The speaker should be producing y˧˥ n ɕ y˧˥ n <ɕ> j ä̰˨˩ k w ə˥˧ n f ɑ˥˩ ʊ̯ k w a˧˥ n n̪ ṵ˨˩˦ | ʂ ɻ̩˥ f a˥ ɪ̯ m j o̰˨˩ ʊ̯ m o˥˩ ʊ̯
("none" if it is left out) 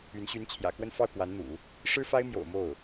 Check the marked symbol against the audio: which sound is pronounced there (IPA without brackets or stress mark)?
t͡ɕʰ